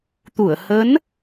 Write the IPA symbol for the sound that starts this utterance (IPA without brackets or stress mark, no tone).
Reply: t̪